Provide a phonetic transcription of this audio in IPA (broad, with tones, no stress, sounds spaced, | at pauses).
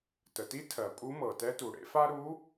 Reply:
t ə˩ t i˧˥ tʰ ɜ˩ pʼ u˧˥ m ɤ˩ t ɛ˧˥ t u˩ ɽ ḛ˧ f a˥ ɾ u˧˥